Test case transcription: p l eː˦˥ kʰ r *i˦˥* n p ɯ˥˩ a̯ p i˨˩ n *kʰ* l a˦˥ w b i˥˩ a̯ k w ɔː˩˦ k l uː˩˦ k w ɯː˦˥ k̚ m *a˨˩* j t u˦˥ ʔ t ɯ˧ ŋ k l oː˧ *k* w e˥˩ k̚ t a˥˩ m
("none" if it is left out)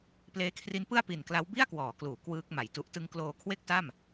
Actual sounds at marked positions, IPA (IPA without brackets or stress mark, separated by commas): i˦˥, k, a˨˩, kʰ